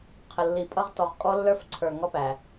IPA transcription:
qʰ ə˨ lː i˨ pʼ ʌ˦ ʁ t ɔ˨ ʁ kʼ ɔ˦ lː ə˞˦ f ǀʰ ə˞˨ ŋ ɔ˦ p æ˨

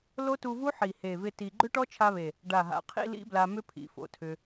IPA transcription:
l o˦˥ t u˧ v u˦˥ ħ i˨˩ h e˨˩ v ɪ˧ t i˧ ɡ͡ǃ ʏ˦˥ ʈ ɔ˦˥ t͡ʃʰ a˧ β e˨˩ | ɖ a˨˩ ɦ a̰˨˩ qʰ ḭ˧ l ḭ˦˥ b l a˧ m ʏ˦˥ pʰ ḭ˨˩ f o̰˨˩ tʰ ʏ˧

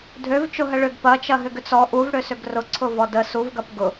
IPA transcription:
dʱ ø v t͡ʃ ʊ ɦ ə ɭ ʏ ɡ p ɐ t͡ʃ ɐ ɦ ʏ ɡ ʏ t͡s ɔ ʔ u v ɽ ø s ʏ ɡ r ʊ ǀʰ ʊ v ɔ d ə s u v ɡ ɐ p ɡ ʊ

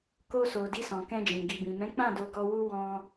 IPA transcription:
k o˧ s o˨ d i˧ s ɔ̃˨ k ɛ̃˧ d͡ʒ ĩ˨ ɡ i˨ b ĩ˨ m ɛ̃˨˦ k͡p ã˦˨ d o˧ ɡ ɔ˧ w u˦ w ɔ̃˦

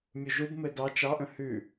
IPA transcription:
mʲ u ʒ u b m ɘ d ɑ t͡ʃ ɑ ʔ ə̃ h ʉ

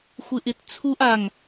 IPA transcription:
xʷ ɪ ʔ ɪ t t͡sʰ u ʔ a ŋ

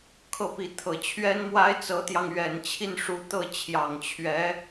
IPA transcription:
kʰ ɤ˥˩ p i˧˥ t̪ʰ ɤ˨˩ t͡ɕʰ ɥ ɛ˥ n m w a˥ ɪ̯ t͡s ɤ˧˥ t̪ j ɑ˧ ŋ ɥ ɛ˨˩ n t͡ɕʰ i˥˩ n ʂ u˧˥ t̪ ɤ˥˩ t͡ɕʰ j ɑ˨˩ ŋ t͡ɕʰ ɥ ɛ˧˥

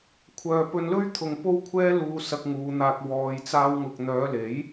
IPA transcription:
kʷʰ œː˨ p ɵ˧ n l ɵ˥ ɥ t̪ʰ ʊ˨ ŋ p o˥ w kʷʰ ɛː˥ l uː˧ s ɐ˧ k̚ ŋ uː˨˧ n̪ aː˧ k̚ w ɔː˧ j t͡s aː˥ w ŋ ʊ˧ k̚ n̪ œː˨˧ l e˨˥ j

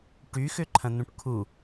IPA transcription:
ʈ y x ʏ ǃʰ ɐ̃ n̪ ũ ʈ kʰ u

